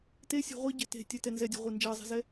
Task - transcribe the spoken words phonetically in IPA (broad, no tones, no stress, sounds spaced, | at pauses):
t e sʲ ɛ̤ ʁʷ e ɟ ɛ̤ t e̤ tʲ ɛ t ɛ n z ɛ dʲ e̤ ʁʷ e n d͡ʒ ɜ zˤ e̤ z ɛ